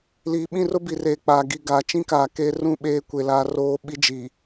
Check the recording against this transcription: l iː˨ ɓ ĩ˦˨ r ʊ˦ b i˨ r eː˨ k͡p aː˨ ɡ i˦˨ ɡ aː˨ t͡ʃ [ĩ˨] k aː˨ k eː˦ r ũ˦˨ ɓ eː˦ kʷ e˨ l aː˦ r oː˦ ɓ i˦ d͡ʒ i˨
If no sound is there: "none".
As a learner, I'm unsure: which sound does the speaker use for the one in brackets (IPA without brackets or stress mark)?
ĩ˦